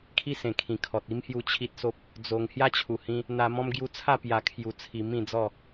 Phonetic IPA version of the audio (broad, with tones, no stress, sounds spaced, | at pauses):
kʰ i˦ s ẽ˨˩ kʰ ĩ˨˩ kʰ ɔ˨ t̚ i˦ m h j u˥˧ t͡ɕʰ i˦ t̚ s o˦ p̚ | d͡z o˨˩ ŋ h j a˦ t͡ɕʰ u˨˩ h ĩ˧ | n̪ a˧ m ɔ̃˦ m ɡ j u˧ t͡sʰ a˥˧ p j a˧ kʰ j u˧ t͡sʰ i˧ m ĩ˥˧ d͡z ɔ˥˧